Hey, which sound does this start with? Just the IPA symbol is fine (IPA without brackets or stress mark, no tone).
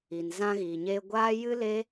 i